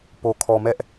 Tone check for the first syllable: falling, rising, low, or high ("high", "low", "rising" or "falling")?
low